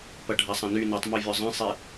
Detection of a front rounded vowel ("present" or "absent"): present